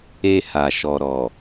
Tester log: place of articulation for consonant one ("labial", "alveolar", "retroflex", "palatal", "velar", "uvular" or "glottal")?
glottal